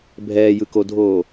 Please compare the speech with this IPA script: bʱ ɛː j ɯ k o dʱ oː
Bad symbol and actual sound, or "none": none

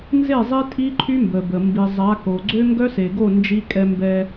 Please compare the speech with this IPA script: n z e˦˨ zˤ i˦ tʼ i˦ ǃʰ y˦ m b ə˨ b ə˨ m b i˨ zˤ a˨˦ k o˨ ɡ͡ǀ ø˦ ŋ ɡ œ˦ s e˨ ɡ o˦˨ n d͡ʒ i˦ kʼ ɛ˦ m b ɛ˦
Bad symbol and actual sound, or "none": none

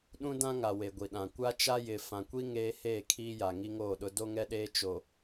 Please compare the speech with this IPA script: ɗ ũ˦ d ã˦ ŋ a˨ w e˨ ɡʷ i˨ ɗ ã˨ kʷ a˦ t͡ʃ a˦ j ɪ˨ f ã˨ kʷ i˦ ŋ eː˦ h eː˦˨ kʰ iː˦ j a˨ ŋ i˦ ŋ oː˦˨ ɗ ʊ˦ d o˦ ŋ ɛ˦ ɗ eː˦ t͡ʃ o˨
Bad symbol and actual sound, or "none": none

